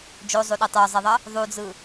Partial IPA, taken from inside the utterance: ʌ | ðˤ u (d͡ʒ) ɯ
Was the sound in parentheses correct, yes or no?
no